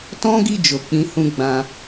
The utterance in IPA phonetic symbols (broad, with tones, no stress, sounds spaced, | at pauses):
t ɔ̃˦ ɡ i˦˨ d͡ʒ o˨ k͡p ĩ˨˦ h ũ˧ ɡ͡b ã˧